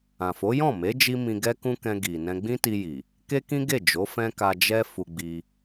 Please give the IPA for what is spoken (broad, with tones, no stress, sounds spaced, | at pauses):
ã˨ f o˨˦ j ɔ̃˦˨ m e˨˦ d͡ʒ i˧ m ĩ˧ ɡ ɛ˦ k ũ˦ k ɛ̃˧ ɡ i˨ n ɛ̃˧ ɡ͡b ĩ˦ t i˧ j i˨ | k e˦ k ĩ˦ ɡ e˦˨ d͡ʒ o˨˦ f ɛ̃˦ k a˧ d͡ʒ ɛ˦ f u˧ ɡ͡b i˧